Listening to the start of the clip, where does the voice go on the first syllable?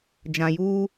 low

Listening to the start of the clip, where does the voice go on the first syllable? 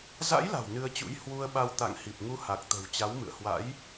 rising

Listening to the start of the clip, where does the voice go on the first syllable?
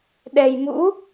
low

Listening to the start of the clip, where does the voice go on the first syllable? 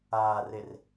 low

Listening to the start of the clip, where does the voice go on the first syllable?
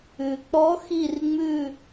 low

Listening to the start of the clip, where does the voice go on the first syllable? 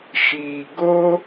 low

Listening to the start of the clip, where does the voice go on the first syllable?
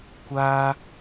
high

